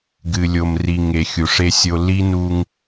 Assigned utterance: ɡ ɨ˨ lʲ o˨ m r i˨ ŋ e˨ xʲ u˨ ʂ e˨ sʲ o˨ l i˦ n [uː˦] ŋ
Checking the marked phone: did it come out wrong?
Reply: yes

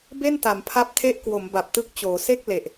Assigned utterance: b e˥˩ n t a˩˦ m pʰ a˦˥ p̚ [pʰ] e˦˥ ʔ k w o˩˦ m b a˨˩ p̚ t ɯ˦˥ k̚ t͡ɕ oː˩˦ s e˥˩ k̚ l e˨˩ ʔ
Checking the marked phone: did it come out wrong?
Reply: yes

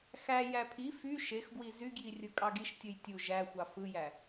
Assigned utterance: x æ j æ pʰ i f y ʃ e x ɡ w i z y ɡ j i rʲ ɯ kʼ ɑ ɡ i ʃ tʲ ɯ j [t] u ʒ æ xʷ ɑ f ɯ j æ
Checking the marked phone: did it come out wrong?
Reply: yes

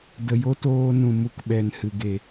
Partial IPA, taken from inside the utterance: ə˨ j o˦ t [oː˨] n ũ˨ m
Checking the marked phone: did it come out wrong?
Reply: yes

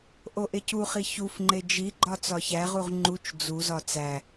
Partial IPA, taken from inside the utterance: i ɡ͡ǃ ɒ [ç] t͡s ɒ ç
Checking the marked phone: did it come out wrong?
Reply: yes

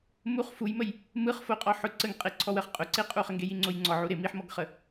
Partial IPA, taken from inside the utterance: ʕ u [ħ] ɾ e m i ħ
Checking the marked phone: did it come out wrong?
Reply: yes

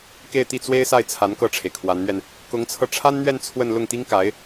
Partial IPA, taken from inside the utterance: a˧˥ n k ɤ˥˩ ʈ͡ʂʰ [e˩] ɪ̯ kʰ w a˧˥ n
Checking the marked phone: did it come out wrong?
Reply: no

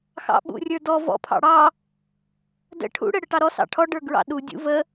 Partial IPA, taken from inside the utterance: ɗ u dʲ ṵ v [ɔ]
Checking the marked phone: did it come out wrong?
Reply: yes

